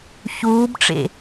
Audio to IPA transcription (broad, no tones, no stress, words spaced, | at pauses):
çuːbʈ͡ʂḛ